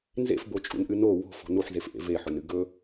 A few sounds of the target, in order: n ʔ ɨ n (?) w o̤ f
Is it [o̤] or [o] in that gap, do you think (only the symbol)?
o